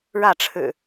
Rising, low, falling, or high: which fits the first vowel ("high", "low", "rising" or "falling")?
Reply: falling